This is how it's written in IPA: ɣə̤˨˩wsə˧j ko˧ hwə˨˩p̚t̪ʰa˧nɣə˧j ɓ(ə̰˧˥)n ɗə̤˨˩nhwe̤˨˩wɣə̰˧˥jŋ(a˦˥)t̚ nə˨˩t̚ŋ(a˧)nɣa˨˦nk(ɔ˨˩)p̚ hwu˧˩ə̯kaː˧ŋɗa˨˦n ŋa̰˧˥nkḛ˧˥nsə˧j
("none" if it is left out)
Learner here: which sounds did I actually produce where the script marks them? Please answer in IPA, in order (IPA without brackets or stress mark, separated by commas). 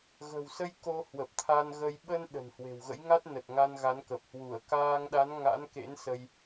ə˧, a˦˥, a˧, ə˨˩